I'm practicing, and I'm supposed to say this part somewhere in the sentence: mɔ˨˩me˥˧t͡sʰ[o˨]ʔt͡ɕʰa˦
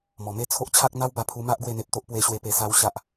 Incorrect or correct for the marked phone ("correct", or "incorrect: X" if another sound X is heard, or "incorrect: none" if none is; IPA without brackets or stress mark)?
incorrect: o˦